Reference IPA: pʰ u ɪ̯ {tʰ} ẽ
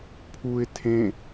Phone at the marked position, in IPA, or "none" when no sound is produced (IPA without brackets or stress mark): tʰ